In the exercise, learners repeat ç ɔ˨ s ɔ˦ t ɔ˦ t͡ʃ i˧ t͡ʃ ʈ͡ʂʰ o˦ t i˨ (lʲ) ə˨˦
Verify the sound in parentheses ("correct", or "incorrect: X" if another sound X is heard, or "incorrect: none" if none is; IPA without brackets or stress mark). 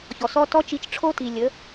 correct